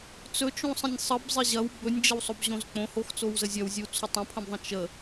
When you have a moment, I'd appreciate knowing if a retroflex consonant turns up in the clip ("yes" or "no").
no